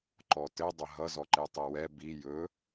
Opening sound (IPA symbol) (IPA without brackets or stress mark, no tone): ǃ